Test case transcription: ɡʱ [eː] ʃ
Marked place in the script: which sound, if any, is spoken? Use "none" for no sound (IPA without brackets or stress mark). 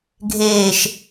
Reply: eː